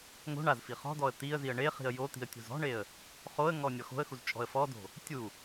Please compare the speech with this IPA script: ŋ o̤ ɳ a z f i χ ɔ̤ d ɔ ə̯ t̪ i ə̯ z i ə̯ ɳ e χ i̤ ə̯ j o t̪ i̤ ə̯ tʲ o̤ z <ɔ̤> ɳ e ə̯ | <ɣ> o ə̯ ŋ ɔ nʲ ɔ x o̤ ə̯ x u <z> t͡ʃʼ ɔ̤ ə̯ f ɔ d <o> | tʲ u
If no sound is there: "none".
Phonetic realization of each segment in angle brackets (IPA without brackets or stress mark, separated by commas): ɔ̤, χ, z, o̤